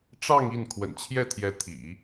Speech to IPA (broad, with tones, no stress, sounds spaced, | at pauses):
ʈ͡ʂ ɑ˥˧ ŋ i˥˩ n kʰ w ə̰˨˩ n t͡ɕʰ j ɛ˥˩ t̪ʰ j ɛ˧˥ t̪ʰ ḭ˨˩˦